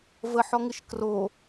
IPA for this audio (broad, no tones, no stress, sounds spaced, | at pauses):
v ə ħ ɔ ŋ ɪ ʃ k r o